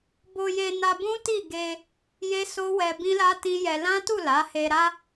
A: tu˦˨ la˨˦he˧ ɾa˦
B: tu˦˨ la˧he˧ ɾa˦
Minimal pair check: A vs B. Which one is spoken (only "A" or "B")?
A